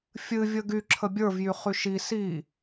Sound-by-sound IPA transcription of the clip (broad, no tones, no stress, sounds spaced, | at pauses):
fʲ ɨ vʲ ə ɡ y ǁʰ ə bʲ ə˞ v j y χ y ʃ i s i